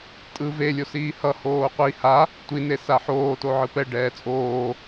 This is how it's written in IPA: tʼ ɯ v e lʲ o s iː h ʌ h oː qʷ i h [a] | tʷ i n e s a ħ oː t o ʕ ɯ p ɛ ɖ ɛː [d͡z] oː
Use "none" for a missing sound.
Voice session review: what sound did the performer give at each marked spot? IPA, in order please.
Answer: a, t͡sʼ

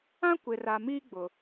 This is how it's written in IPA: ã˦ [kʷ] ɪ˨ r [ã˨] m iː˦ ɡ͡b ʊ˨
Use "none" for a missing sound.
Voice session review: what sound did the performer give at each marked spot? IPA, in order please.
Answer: kʷ, a˨

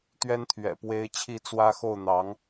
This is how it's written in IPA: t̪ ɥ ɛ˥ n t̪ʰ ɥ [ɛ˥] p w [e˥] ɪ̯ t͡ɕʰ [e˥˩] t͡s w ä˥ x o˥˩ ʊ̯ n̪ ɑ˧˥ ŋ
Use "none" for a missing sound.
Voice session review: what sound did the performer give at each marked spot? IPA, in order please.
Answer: ɛ̰˨˩, e˥, i˥˩

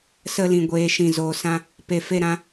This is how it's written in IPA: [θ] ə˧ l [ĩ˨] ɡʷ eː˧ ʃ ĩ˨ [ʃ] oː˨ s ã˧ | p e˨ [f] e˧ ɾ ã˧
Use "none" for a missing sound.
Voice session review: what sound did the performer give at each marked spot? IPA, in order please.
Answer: s, ĩ˨, z, f

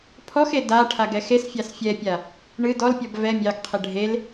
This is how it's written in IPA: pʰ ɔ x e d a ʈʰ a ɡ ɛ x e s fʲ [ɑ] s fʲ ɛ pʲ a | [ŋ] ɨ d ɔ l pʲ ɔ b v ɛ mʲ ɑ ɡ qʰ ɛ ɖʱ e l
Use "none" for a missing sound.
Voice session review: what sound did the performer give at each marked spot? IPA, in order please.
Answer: ɑ, ɳ

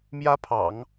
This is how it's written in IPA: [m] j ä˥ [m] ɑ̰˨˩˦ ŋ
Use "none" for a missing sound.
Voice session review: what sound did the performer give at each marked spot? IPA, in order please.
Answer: m, pʰ

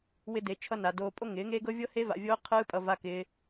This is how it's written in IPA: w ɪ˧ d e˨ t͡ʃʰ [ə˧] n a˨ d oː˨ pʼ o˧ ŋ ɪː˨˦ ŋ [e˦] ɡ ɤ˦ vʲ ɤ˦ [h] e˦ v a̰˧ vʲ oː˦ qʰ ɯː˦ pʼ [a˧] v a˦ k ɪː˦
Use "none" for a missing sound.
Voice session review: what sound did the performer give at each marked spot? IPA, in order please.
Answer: ʌ˧, e˦, h, ʌ˧

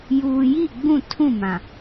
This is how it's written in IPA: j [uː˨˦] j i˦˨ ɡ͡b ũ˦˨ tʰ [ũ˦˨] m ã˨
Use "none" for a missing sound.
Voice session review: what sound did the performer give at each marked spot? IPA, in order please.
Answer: uː˨, ũ˦˨

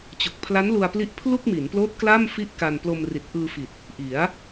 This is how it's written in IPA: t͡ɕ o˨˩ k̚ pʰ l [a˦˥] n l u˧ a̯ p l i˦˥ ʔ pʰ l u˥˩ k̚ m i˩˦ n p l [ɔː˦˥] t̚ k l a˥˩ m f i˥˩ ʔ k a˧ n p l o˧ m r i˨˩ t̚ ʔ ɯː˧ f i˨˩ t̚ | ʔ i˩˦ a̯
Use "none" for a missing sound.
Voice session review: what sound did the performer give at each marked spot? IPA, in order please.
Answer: a˦˥, oː˦˥

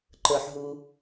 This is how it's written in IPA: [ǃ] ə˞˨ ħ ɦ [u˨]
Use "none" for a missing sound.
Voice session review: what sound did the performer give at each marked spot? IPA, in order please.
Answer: ǃ, u˨

